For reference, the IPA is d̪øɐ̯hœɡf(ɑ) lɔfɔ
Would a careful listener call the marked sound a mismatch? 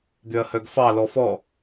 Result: no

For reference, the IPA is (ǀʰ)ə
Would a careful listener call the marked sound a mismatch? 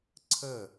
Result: no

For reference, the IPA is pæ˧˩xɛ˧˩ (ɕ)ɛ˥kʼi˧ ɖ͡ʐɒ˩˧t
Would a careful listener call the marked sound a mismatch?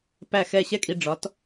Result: no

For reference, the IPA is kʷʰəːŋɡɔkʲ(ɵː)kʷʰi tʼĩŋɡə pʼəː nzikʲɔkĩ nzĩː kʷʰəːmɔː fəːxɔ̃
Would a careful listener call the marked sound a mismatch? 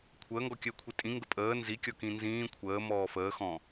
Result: yes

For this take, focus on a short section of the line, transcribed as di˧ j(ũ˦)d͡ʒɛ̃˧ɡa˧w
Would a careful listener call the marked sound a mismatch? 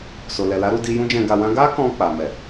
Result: no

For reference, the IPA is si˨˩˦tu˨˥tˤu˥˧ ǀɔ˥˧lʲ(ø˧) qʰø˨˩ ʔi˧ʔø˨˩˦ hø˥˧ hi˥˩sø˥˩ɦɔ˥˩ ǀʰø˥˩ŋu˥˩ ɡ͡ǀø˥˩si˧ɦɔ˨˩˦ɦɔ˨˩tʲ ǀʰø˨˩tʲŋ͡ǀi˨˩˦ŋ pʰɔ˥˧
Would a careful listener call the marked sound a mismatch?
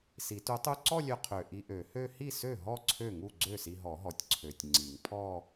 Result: no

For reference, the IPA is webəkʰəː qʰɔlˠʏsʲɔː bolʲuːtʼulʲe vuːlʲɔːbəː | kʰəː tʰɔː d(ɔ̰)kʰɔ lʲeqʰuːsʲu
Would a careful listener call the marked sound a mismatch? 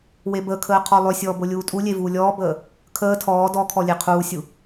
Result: yes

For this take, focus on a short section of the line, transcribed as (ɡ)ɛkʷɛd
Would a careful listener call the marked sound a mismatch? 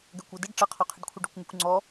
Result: no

